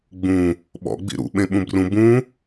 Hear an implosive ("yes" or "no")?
yes